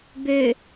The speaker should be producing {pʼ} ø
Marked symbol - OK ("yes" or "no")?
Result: no